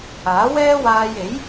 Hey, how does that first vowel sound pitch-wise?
rising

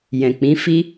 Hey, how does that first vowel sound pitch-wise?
low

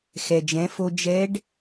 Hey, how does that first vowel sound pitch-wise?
low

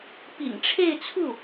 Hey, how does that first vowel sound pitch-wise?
low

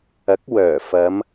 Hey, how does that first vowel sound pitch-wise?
rising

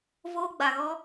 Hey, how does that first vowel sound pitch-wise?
high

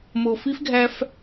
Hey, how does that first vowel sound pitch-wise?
low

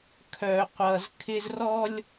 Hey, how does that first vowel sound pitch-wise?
low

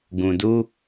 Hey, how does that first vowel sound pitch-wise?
low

